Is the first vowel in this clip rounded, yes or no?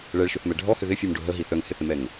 no